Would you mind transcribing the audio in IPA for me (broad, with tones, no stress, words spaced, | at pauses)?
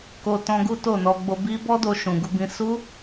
ko˧tɔ̃˧ ɡu˦to˦˨nɔ˧ ɡ͡bo˧bi˦ bɔ˦do˧ʃũ˨ ɡu˧bĩ˧ su˦